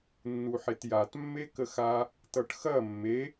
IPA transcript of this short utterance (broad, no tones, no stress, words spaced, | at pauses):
nːuħetjat mːekəxa | tʌʈxɐ mːe